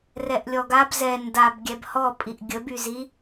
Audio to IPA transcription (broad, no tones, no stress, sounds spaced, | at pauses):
r ɛ ʔ lʲ ɔ ɡ a b z ɛ n d a b ɡʲ ɛ b h ɔ pʼ i ʔ ɡʲ ə b y z i